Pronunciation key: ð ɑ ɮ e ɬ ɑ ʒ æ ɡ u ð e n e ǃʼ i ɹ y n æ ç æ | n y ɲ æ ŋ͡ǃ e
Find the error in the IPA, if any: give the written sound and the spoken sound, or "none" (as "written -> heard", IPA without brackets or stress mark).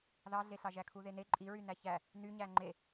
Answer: ɡ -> kʰ